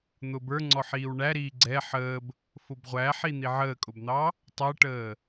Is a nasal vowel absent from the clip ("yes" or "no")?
yes